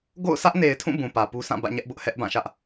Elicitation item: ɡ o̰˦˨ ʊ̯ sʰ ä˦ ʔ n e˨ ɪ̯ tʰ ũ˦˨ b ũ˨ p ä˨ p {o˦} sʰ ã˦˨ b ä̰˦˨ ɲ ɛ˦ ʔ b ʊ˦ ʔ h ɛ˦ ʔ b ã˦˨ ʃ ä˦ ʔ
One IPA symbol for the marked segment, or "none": u˦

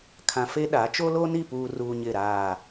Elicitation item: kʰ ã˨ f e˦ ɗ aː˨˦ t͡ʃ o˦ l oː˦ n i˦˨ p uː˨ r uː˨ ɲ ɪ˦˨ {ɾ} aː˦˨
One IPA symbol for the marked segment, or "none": ɾ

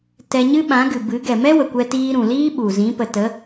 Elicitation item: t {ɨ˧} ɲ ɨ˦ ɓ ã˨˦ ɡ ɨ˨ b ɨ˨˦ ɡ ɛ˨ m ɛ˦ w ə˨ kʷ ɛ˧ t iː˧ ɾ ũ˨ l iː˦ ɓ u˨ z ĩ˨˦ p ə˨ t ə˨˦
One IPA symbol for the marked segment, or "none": ɛ˧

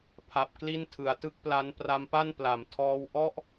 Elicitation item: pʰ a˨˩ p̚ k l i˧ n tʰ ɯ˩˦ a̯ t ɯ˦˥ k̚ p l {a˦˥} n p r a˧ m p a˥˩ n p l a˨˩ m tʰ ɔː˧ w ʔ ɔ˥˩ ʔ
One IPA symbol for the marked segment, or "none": a˦˥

